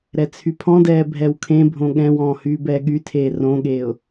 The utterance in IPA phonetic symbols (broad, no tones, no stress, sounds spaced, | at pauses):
ɾ ɛ t͡sʰ y pʰ ɔ̃ d ɛː bʱ ɛ w kʰ ẽ bʱ õ ɠ ɛ̃ w ɔ̃ː h yː b ɛː ɠ y tʰ eː r õ ɠ eː ʊ̯